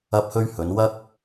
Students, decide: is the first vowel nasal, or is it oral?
oral